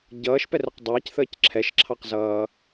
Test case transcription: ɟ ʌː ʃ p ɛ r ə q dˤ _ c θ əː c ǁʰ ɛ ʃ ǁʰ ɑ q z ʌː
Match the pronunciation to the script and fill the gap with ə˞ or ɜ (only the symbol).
ə˞